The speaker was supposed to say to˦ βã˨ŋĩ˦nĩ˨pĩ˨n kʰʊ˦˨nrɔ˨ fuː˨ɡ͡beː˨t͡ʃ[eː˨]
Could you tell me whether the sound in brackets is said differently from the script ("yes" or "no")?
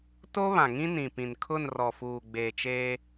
yes